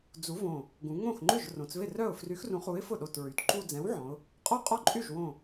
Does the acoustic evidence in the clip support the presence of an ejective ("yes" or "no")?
yes